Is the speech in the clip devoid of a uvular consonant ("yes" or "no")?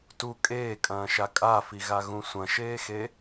yes